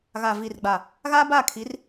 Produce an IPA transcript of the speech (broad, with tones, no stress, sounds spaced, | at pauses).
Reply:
ɣ a˨ v i˨ r ɡ͡b a˨ | ɣ a˦ b a˦˨ kʰ i˨˦ r